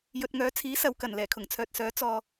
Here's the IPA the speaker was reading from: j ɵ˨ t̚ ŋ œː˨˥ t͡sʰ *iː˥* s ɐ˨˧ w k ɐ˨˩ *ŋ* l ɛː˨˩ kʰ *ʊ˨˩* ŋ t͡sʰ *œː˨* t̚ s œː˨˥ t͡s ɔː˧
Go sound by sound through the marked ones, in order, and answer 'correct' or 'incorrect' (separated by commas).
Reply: incorrect, incorrect, correct, correct